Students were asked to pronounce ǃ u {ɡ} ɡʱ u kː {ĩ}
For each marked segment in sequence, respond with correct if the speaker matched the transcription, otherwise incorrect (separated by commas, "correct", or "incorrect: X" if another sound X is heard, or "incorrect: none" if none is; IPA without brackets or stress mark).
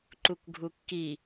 incorrect: k, incorrect: i